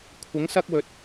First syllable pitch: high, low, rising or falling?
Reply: rising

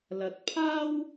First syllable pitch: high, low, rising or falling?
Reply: rising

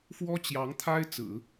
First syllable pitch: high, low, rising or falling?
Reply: high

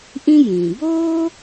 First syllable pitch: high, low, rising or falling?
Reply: high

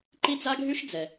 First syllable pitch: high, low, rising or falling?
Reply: high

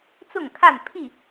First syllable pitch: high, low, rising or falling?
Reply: falling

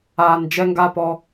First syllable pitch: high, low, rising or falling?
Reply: low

